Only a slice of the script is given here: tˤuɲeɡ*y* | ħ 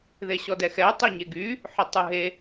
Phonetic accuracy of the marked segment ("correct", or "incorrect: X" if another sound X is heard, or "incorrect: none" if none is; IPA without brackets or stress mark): correct